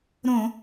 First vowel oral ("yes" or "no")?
no